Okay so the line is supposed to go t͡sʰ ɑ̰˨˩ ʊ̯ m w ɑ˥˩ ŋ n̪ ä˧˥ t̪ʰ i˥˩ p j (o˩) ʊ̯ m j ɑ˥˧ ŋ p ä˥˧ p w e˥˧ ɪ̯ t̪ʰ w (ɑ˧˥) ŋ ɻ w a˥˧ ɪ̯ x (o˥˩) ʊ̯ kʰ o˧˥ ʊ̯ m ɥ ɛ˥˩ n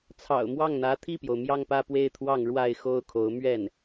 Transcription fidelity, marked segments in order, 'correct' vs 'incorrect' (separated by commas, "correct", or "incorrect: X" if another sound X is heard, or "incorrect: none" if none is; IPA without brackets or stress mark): correct, incorrect: ɑ˥˧, correct